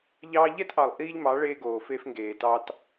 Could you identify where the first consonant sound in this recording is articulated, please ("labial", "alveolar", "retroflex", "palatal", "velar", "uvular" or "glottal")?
palatal